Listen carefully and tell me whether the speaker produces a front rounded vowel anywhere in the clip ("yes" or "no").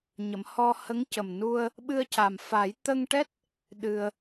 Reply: no